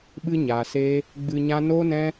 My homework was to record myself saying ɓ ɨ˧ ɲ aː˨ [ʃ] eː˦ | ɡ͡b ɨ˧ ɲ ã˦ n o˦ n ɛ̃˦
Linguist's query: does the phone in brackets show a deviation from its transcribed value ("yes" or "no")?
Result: yes